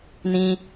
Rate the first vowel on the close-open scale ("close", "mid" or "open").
close